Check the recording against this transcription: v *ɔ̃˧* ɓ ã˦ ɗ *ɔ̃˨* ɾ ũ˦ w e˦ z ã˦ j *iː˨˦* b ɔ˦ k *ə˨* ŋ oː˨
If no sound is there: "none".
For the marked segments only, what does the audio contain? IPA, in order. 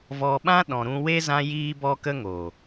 ɔ˧, ɔ̃˧, iː˦, ə˦

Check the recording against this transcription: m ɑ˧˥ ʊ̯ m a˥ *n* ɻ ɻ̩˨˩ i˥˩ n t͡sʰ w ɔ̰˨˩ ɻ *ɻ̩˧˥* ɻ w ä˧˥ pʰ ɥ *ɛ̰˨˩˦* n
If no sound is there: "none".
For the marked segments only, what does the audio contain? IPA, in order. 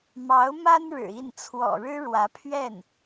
n, ɻ̩˥, ɛ˥˩

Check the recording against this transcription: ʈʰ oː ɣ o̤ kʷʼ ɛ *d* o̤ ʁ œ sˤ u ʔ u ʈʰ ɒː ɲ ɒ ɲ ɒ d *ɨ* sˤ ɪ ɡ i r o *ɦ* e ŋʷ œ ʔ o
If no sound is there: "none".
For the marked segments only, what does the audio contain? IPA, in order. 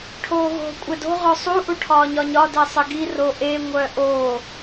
d, e, ʔ

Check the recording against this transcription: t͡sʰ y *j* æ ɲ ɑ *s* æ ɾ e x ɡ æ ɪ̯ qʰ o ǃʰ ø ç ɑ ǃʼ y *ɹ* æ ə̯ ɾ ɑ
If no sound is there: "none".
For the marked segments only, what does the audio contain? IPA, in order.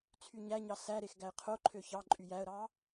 ɲ, s, j

